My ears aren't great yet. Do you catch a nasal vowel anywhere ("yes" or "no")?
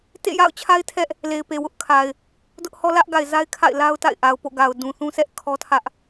yes